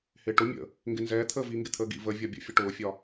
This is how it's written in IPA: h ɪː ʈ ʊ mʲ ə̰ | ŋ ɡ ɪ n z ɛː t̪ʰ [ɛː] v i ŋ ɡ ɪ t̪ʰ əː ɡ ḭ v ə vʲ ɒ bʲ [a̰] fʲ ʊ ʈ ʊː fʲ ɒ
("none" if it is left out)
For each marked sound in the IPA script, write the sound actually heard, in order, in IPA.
əː, ə̰

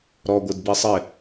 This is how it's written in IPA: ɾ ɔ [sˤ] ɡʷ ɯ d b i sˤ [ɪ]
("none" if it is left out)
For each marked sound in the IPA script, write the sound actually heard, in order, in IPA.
none, ɪ

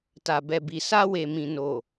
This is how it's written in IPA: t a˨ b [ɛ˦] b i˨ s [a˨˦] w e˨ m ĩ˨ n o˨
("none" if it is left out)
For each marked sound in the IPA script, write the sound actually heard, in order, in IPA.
ɛ˨, a˧

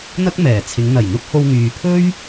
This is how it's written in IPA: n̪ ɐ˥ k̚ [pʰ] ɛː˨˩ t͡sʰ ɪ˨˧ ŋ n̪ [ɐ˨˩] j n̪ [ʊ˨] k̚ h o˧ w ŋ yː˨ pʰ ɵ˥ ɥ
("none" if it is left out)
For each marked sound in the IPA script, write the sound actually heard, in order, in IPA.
m, ɐ˨˩, ʊ˥

